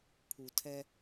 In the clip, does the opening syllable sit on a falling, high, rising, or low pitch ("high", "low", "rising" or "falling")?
high